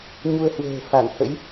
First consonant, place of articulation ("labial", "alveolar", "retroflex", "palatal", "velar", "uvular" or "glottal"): palatal